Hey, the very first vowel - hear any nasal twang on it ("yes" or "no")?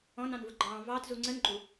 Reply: yes